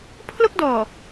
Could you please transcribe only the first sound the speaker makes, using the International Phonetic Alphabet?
pʰ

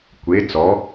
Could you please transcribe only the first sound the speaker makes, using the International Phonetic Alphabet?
kʷ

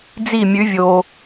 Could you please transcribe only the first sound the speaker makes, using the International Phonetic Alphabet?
d͡z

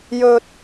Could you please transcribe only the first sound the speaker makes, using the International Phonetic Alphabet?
j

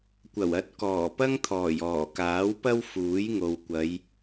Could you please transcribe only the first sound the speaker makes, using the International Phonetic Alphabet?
kʷ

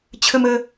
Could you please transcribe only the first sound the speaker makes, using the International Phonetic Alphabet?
t͡ɕʰ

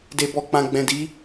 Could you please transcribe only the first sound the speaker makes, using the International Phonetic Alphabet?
d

